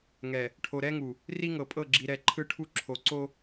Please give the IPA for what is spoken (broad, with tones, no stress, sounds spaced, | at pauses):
ŋ ɛ˨ | ʈʰ o˨ ɾ ɛ˦ ŋ u˨ | r i˦ ŋ ɤ˨ pʼ ɤ˦˨ ɡ͡ǁ i˨ ɾ ɛ˨ ǃʰ ɯ˦ ʈʰ u˦ ǁʰ o˨ ǀ o˦